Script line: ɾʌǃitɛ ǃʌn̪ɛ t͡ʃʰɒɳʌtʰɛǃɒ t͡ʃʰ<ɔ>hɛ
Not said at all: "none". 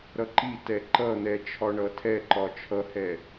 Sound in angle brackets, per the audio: ʌ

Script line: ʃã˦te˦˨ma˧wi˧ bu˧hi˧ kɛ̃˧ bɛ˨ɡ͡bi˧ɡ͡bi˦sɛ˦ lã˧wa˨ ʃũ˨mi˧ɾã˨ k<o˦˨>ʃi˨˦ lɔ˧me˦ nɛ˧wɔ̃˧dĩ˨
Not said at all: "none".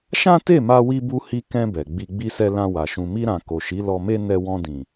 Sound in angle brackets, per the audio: o˨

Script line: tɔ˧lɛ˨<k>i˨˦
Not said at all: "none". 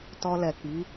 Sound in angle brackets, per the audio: k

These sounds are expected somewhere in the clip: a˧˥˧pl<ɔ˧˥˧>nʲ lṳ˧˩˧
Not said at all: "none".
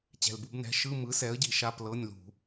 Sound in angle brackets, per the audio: ɤ˧˥˧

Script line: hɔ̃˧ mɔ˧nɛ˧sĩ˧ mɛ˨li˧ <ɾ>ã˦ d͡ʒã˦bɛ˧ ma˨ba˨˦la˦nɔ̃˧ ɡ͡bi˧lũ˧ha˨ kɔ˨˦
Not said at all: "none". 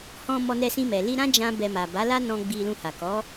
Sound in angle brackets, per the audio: ɾ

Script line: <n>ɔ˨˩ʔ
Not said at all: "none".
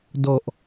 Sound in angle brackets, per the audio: d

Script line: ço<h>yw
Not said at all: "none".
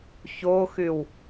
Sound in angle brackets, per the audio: x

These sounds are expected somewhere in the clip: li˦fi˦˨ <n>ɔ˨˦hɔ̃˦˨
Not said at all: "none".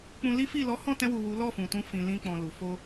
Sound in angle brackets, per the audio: l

